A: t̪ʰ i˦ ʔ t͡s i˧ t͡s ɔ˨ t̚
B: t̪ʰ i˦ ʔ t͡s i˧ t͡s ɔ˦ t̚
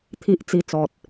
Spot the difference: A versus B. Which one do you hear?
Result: A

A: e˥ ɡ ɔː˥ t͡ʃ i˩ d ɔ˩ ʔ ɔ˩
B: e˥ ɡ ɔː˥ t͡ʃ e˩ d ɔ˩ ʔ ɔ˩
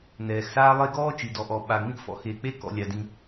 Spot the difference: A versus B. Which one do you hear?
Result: A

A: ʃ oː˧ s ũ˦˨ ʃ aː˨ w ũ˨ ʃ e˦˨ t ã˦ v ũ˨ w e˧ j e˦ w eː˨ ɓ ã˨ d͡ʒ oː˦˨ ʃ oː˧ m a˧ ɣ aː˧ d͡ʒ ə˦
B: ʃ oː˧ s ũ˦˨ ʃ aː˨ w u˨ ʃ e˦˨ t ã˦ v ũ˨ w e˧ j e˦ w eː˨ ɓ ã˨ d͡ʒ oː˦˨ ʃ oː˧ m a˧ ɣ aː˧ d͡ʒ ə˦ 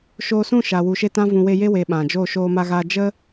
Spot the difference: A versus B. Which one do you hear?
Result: B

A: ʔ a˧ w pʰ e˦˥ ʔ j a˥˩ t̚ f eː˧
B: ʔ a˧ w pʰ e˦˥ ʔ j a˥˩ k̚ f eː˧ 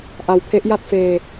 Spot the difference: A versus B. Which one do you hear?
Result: A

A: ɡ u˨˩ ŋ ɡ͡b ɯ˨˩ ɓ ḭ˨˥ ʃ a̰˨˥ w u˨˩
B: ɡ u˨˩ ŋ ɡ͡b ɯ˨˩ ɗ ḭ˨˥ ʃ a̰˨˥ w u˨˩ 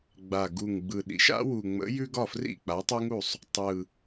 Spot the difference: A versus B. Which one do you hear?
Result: B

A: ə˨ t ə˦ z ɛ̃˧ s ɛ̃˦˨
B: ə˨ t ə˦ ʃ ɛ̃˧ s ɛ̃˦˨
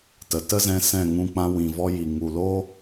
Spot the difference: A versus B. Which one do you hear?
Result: A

